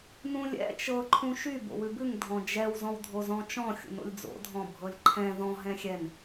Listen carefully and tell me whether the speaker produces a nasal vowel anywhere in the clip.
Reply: yes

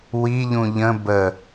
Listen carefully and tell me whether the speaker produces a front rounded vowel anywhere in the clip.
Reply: no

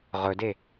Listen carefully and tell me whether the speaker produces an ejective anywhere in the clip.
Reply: no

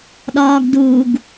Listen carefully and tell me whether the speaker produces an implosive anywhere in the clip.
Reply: yes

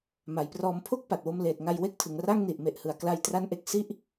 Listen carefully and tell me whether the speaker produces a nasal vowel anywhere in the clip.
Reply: no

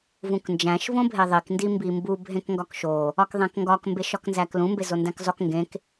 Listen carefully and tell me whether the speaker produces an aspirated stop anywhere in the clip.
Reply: no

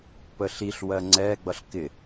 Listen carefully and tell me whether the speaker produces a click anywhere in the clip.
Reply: yes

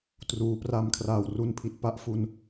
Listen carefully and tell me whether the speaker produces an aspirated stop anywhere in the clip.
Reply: yes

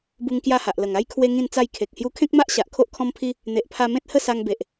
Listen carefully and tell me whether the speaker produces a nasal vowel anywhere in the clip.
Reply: yes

